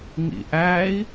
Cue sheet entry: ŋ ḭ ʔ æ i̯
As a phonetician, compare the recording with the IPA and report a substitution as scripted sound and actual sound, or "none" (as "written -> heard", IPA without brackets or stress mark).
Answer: none